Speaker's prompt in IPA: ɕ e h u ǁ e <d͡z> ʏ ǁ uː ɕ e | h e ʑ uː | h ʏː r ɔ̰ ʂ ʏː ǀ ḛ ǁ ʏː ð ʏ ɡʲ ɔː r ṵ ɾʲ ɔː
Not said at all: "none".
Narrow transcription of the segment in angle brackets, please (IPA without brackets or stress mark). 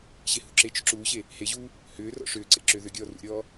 t͡ʃ